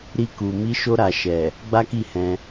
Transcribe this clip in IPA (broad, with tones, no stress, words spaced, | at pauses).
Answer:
ɾi˧ku˨ mi˨˦ʃo˧ɾa˨ ʃɛ˨ | ɡ͡ba˦ki˦˨ hɛ̃˧